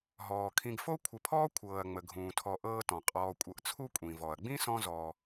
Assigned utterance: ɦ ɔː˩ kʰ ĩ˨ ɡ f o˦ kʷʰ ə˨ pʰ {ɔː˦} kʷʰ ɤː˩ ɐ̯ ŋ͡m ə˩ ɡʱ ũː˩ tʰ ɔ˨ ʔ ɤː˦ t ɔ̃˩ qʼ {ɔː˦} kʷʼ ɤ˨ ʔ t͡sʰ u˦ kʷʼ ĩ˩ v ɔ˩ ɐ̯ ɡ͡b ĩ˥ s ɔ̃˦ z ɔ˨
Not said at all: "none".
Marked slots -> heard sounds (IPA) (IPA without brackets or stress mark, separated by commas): ɔː˦, ɔː˨